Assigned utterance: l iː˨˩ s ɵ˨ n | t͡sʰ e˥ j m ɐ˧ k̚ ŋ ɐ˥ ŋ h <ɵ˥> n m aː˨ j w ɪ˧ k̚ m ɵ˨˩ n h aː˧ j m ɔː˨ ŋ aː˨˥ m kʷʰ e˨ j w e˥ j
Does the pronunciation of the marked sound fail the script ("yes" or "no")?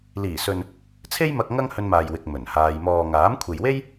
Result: yes